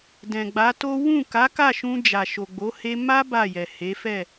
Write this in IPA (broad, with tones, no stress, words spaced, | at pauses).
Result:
dɛ̃˨ɡ͡ba˨˦to˦ wũ˦˨ka˨˦ka˦˨ʃũ˧ d͡ʒa˨ʃo˨ɡ͡bo˨˦ he˧ma˦ ba˦˨jɛ˨he˨˦fɛ˦˨